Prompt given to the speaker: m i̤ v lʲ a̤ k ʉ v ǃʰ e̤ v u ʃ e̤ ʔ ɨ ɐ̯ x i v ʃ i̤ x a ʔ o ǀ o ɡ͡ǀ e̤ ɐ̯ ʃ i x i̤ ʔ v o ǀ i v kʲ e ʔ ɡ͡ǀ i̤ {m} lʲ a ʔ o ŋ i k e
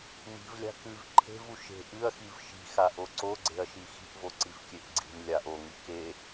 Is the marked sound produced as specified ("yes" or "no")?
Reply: yes